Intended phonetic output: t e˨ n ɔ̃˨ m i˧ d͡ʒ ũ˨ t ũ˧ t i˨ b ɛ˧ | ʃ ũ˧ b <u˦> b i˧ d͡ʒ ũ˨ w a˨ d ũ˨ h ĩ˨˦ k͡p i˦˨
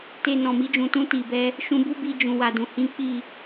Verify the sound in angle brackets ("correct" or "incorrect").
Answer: correct